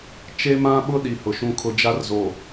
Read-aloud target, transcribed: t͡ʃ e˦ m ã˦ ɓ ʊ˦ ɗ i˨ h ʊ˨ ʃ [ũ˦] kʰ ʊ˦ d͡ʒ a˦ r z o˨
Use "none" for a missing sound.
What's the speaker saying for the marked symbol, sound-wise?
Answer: ũ˦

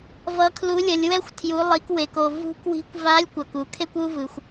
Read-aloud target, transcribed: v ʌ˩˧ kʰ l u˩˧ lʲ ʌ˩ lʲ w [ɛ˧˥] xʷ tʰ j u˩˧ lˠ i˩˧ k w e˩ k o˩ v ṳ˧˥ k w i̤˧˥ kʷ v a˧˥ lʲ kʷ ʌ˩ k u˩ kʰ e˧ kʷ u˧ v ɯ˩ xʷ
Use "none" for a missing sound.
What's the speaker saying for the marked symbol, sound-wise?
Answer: ɛ˧˥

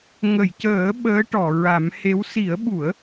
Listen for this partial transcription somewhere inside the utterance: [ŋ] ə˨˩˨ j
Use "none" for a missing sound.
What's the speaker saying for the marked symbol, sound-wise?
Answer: ŋ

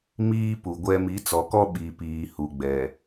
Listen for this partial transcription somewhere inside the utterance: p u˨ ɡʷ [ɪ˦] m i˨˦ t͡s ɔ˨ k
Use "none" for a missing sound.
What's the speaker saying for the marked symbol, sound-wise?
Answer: ɛ˦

